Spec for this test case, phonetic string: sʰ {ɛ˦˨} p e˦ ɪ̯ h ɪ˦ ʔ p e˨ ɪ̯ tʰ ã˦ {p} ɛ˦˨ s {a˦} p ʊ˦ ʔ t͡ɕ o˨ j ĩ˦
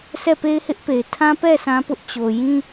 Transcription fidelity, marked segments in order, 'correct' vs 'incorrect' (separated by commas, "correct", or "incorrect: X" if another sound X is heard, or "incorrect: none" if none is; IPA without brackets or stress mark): correct, correct, incorrect: ã˦